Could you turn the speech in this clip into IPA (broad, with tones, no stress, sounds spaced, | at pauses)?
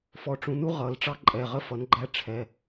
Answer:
f ɔ˩˥ ʈ͡ʂ ũ˩˥ n u˥ ʁ ʌ˨˩˦ l ʈ͡ʂ ɑ˥ ǃʼ ɛ˩˧˩ ʁ ə˥ f ʌ˩˥ n ɡ͡ǃ æ˥ ʈ͡ʂʰ ɛ˩˧˩